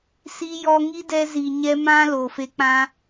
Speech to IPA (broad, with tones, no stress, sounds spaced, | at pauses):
s i˧ j ɔ˧ ŋ i˦ d ɛ˧ z i˨ ɲ ɛ˧ m ã˦ l o˨ f e˧ k͡p ã˦